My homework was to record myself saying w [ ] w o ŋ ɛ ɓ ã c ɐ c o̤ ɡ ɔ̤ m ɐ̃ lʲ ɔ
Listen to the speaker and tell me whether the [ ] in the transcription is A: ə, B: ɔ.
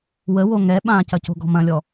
A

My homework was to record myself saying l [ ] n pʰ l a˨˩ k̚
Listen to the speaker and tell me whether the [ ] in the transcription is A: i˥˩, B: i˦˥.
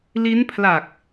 B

